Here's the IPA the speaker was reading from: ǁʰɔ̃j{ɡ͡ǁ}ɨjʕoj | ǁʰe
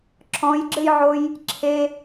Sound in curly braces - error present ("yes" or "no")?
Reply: no